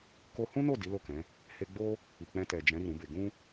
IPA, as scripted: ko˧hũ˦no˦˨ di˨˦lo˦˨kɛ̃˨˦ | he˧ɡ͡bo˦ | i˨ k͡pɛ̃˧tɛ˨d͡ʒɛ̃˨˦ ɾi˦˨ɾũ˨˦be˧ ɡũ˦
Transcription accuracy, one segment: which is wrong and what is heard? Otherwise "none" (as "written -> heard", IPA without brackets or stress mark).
none